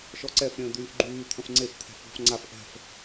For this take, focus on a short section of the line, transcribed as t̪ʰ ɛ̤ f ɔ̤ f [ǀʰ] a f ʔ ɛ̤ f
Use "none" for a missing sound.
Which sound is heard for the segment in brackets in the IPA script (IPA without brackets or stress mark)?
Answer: ŋ͡ǀ